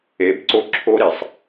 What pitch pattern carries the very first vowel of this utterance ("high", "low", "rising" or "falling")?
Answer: rising